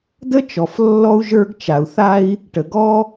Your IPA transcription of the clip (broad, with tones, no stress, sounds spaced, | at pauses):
d ə˥ t͡ʃ ɔ˩ f lː ɔ˥ u̯ ʒ ə˞˥ ɡ t͡ʃ a˩ u̯ θ a˥ i̯ | ʈ ə˩ ɡ ɔ˥